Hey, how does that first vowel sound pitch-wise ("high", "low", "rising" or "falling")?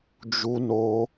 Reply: high